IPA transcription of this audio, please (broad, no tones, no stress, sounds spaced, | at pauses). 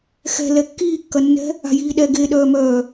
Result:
x ɛ̤ l ɛ kː iː kː ɐ nː ɛ̤ | a̤ j iː ɗ ɛ ɡ e ɗ œː m œː